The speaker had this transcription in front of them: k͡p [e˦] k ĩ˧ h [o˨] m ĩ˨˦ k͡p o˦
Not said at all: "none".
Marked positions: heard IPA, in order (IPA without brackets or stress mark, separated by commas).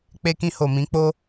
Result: e˧, o˨